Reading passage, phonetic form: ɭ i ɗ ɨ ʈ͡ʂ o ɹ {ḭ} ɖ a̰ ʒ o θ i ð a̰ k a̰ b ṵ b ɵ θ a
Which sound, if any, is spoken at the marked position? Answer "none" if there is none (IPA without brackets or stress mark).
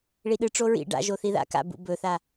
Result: ḭ